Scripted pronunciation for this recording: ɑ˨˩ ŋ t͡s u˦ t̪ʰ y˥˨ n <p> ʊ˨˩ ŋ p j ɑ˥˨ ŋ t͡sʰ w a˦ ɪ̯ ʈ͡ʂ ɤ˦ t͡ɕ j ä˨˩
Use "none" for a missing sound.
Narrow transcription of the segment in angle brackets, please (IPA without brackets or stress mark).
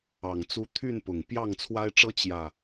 p